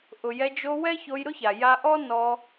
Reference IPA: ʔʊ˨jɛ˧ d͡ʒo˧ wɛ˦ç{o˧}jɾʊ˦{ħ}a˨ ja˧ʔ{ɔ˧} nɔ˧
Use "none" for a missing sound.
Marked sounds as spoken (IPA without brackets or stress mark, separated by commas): o˧, ç, ɔ˦